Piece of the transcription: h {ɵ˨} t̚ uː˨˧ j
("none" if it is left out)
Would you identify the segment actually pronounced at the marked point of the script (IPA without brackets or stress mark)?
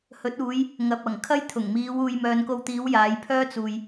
ɵ˨˥